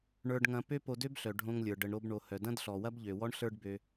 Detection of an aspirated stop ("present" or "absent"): absent